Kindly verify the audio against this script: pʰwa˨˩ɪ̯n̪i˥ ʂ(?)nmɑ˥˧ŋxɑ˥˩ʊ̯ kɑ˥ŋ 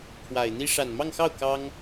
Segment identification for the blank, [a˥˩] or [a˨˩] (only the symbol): a˨˩